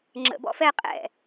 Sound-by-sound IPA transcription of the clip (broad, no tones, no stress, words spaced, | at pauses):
ŋ͡ǁə̰ bɔ̰fɛ qʼɛ̰